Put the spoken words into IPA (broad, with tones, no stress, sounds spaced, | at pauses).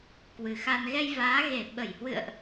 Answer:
k w ɨ˨˩ x a˧ n ɣ ɛ˧ j v aː˨˦ ɣ e˧˩ ɓ ə˧˩ j h w ɨ̰˧˨ ə̯ ʔ